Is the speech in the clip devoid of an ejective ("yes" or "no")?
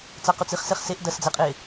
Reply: no